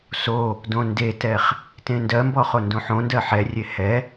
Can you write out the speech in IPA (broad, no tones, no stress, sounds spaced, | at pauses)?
s o | d õ n d e t ɛ χ | t ẽ n d ɜ m b ɔ χ o n d õ ħ õ n d ɜ ħ ɛ rʲ e h ɛ